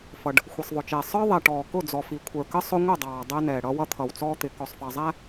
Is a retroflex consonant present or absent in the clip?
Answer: present